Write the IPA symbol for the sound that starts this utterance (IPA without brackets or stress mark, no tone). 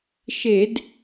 ʃ